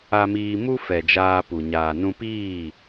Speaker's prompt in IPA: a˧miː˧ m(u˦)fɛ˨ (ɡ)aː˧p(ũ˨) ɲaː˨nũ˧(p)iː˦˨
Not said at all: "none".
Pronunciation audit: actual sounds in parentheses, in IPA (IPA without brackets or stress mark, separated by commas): u˦, d͡ʒ, u˨, p